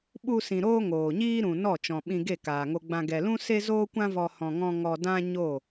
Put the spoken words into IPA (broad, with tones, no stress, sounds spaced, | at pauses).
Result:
ɓ u˧ s ĩ˨ ɾ oː˦ ŋ oː˨ ɲ iː˦ ɾ ũ˨ n ɔ˦˨ t͡ʃ ɔ̃˨ ɓ ĩ˧ ɡ e˦˨ k aː˨ ŋ o˧ ɡ͡b ã˧ ɡ ɛ˨ l ũ˦ s e˦ z oː˦ kʷ ã˦ v ɔ˧ h ɔ̃˧ ŋ ɔ̃˦ ŋ ɔ˧ d ã˦ ɲ o˦˨